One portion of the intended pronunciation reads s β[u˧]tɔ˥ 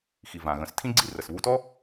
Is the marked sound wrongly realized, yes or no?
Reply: no